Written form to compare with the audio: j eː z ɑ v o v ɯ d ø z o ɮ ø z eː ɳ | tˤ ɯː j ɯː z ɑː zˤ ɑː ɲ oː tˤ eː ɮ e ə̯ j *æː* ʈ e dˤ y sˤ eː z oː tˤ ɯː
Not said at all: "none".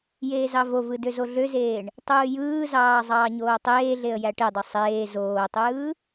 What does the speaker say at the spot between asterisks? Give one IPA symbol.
æ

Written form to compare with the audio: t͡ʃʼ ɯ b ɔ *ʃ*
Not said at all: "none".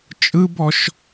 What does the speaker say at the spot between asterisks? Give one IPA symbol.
ʃ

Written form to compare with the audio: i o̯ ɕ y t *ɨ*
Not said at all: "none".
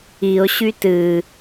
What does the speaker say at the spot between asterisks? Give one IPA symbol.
ɨ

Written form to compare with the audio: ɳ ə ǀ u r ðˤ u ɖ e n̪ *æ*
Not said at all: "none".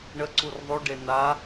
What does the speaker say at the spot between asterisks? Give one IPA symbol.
a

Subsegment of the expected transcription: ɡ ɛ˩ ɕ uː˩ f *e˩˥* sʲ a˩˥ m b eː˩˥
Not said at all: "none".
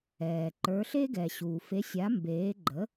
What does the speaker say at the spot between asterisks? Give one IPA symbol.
e˩˥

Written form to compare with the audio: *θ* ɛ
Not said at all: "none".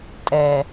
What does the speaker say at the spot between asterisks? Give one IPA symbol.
tʼ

